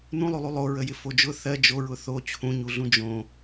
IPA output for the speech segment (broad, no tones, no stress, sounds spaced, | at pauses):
n ũ lˠ u lˠ u lˠ o ɹ ə j ɪ f o d͡ʒ ʊ θ ɜ d͡ʒ o ɹ ʊ θ o t͡ɕʰ ũ ɲ u ɮ ũ d͡ʒ õ